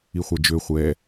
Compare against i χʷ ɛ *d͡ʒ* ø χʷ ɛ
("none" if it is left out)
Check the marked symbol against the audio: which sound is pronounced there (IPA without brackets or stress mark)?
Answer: d͡ʒ